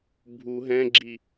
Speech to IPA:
bʱ u ɦ ɛ̃ ɡ͡ǁ i

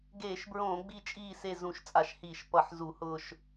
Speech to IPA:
ɡ eː˧˩˧ ʃ b ɹ õː˧˩˧ ɡ͡b i˦˨ t͡ʃʼ iː˦˨ s e˦˨ z ũ˧˩˧ ʃ t͡sʼ a˧˩˧ ʃ h iː˧˩˧ ʃ p ʌ˧˩˧ ħ z u˧˩˧ h ʊː˦˨ ʃ

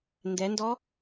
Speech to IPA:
n d ɛ n d ɔ

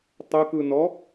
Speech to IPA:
tˤ ə k ɯ n ɔ

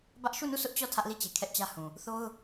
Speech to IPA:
b ä˦ ʔ ʃ u˦˨ n u˦˨ sʰ ʊ˦ ʔ t͡ɕ ɔ˦˨ tʰ ä˦ ʔ l i˦˨ t͡ɕ e˨ kʰ ɛ˦ ʔ t͡ɕ ä˦ h ũ˨ | θ o˦ ʊ̯

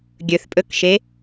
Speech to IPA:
ɡʲ ɵ θ pʼ ɵ k ʃ e

